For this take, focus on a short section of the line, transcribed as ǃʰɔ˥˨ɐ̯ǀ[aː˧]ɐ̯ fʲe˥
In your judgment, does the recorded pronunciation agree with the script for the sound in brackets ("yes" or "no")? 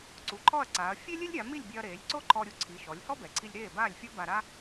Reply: no